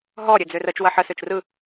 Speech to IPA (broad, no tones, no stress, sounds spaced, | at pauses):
ɦ ɔ ɾʲ ø d͡z ø r ə t͡ʃ w ɐ ħ ə s ø t͡ʃ r ɯ